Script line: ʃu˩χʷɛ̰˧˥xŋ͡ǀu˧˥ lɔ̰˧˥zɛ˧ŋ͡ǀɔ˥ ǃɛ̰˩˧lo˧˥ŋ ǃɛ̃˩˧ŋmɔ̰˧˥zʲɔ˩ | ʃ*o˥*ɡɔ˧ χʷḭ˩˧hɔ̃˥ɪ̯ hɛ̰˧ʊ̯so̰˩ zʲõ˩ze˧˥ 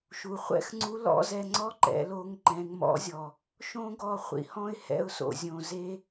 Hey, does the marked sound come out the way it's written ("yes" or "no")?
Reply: no